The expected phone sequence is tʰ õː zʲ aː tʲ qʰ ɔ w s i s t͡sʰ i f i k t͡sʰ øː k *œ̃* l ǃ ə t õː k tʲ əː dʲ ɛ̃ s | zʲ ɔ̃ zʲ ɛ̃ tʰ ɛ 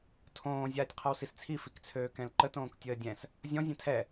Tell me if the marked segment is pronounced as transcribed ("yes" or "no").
no